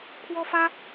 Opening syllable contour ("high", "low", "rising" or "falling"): high